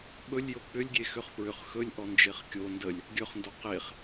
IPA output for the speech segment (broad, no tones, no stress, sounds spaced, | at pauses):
ɓ ɵ lʲ j o k͡p ʏ lʲ ɡʲ e x ʏ χ p ɹ ʏ χ x ɵ lʲ ʔ ɔ n d͡ʒ e χ kʲ o n d ə lʲ | ɡʲ ɵ χ n d o q e χ